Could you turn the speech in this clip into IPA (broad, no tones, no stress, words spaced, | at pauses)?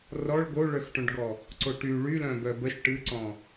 rɔɭ ɡoɭœxʈœ̃ɖɡɔ | ǀoʈy ɭylœ̃ bœbəʃ ʈɨǀɔ̃